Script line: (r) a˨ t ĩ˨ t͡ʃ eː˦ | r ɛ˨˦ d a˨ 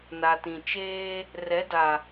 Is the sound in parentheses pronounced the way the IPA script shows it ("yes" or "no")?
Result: no